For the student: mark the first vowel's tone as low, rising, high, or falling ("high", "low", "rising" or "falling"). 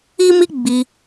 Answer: high